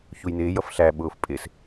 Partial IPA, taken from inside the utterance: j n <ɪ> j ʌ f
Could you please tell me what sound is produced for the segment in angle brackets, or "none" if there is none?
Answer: ɪː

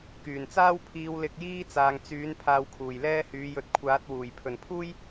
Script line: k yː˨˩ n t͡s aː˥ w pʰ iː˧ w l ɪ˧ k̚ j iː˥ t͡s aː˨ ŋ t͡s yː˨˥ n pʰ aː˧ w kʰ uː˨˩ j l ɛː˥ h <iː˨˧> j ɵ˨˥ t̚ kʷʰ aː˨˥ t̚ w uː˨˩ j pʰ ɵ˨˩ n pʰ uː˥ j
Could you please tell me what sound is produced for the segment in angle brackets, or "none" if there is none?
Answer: yː˨˧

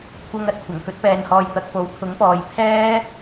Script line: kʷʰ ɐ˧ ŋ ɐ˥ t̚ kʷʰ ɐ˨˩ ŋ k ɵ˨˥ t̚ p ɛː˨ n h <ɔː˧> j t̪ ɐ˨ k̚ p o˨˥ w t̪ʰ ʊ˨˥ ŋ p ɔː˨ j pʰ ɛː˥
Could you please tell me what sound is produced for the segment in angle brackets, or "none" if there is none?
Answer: ɔː˨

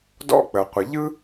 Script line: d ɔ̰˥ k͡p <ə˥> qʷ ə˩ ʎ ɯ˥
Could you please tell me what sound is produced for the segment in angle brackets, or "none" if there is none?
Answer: ə˩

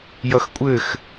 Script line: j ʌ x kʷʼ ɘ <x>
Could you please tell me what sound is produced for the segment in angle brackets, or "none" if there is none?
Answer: x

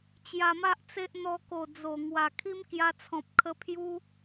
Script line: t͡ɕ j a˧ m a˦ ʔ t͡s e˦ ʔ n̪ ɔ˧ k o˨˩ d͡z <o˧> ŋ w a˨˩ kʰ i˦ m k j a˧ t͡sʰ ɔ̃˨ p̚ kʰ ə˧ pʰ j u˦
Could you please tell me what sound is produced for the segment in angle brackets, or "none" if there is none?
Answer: o˨˩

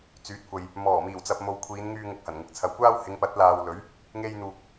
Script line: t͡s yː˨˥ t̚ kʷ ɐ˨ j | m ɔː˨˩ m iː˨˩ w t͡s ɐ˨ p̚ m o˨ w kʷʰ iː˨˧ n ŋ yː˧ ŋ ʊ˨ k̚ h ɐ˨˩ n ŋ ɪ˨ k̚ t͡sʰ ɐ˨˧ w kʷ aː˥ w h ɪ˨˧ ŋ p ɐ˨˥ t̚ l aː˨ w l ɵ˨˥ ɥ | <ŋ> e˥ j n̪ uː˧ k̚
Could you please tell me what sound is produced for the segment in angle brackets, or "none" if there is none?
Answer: ŋ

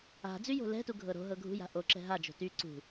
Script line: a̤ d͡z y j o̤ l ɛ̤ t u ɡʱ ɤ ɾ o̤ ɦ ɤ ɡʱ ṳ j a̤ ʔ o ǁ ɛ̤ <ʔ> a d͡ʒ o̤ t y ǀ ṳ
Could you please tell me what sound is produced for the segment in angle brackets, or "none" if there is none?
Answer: ɦ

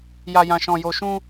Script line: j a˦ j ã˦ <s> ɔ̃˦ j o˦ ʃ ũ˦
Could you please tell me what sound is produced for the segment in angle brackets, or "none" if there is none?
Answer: ʃ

